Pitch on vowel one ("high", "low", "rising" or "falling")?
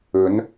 rising